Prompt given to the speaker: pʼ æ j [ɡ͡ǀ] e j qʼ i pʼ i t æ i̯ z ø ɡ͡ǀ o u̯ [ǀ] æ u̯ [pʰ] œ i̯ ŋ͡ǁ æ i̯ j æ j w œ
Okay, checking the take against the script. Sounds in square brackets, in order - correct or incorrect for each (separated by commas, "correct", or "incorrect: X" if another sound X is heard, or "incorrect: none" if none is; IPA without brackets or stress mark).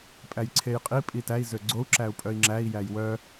incorrect: ǀʰ, incorrect: ǁ, incorrect: pʼ